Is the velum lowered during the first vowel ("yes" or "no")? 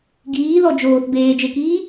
no